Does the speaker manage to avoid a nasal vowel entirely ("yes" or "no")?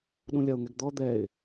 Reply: no